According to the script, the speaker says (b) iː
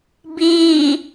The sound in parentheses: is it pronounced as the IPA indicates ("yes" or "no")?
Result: yes